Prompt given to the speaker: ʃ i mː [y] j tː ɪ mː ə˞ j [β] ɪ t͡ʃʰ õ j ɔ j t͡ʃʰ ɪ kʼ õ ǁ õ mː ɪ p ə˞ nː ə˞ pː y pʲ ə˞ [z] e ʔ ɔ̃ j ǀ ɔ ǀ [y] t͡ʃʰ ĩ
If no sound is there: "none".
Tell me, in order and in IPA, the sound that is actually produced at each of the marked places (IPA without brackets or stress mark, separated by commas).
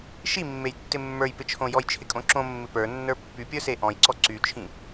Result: e, p, s, y